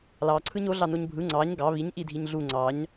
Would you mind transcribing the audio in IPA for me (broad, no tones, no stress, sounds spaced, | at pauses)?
l ɑ ǀʰ ɯ ɲ o ɮ ɑ n o ɲ bʱ ɯ ŋ͡ǀ ɑ ɲ ɡ ɑ β i ɲ ʔ i dʱ i ɲ ɮ u ŋ͡ǀ ɑ ɲ